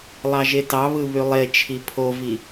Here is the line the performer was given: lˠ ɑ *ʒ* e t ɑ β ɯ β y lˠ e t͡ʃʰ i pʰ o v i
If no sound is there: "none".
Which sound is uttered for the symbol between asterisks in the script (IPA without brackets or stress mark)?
ʒ